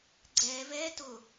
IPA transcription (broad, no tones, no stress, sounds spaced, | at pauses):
ɡ͡ǀ ɛː v ɛː t ʊ